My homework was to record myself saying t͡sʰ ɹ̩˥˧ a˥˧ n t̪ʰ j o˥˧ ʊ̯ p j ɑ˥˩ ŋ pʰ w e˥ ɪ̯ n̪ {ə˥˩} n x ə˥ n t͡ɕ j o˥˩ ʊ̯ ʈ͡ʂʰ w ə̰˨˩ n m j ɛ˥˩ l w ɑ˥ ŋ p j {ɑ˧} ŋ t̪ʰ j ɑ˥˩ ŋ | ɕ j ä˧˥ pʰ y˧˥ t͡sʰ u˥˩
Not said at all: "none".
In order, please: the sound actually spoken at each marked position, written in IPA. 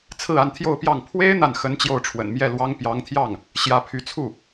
a˥˩, ɑ˧˥

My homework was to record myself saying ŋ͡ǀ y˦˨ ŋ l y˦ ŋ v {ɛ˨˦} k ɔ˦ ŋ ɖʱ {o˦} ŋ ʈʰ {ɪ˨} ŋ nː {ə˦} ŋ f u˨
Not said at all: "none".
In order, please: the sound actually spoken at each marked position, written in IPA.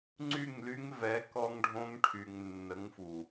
ɛ˨˦, õ˦, y˨, ə˨˦

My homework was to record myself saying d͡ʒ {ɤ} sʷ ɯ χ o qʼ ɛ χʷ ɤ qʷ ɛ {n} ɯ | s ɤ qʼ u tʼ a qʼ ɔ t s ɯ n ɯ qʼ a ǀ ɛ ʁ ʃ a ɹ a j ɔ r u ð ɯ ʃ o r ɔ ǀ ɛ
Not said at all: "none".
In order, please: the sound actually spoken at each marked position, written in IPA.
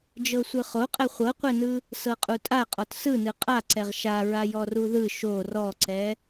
ɤ, n

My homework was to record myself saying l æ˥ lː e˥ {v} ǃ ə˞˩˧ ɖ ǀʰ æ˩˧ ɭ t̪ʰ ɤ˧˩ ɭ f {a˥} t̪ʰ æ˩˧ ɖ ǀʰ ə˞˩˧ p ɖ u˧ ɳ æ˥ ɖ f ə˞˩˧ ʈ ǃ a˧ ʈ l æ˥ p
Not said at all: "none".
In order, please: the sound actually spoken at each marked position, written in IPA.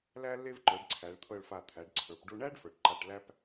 v, a˧˩

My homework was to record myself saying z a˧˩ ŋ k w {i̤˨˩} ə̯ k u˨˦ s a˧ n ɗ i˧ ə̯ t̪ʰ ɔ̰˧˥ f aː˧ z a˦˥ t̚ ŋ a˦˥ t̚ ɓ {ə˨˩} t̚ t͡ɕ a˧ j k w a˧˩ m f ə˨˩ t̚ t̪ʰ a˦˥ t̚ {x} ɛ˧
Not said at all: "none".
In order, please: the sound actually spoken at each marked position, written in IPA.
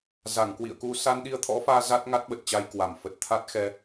ḭ˧˨, ə˨˩, x

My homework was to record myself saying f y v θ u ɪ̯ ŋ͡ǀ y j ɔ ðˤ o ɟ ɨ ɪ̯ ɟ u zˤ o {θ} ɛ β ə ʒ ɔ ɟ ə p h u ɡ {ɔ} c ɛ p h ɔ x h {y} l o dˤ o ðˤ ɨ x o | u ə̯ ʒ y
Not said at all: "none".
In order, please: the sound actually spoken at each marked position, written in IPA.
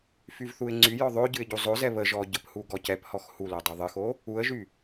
z, ɔ, u

